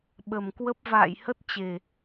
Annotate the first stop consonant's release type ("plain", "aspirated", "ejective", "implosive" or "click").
implosive